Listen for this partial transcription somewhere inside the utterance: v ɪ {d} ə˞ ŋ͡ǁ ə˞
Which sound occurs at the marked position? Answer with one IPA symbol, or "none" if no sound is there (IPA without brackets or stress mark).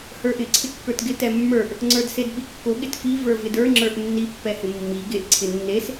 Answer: d